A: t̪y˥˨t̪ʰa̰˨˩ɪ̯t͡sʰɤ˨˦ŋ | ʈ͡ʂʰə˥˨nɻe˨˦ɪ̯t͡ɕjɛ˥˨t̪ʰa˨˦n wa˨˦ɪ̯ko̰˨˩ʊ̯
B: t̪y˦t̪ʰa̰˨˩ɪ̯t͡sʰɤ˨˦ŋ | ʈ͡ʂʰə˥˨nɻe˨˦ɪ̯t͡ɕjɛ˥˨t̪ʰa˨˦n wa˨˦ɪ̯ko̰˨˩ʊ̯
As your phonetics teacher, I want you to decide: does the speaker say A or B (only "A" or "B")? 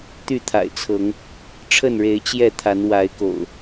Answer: A